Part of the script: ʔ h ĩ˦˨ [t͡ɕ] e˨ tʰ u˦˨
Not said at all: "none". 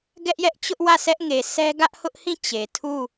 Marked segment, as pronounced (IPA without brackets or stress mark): t͡ɕ